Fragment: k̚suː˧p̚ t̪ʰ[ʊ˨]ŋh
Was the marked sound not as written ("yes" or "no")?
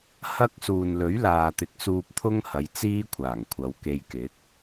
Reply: yes